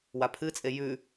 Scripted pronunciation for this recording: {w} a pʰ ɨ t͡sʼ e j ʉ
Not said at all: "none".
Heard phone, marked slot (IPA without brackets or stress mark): w